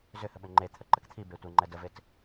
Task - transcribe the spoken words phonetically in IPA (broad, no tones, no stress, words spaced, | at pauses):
zʏhə ɓʏŋ͡ǃe t̪ʰəǃəkt̪ʰi betʷeŋ͡ǃɛ dəvet